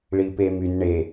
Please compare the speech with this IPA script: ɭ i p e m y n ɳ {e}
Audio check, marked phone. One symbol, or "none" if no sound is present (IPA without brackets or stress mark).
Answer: e